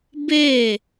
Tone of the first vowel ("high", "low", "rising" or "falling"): falling